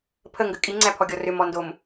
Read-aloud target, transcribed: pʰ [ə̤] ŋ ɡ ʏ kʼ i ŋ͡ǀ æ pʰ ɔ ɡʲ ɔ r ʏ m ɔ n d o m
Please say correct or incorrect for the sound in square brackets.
incorrect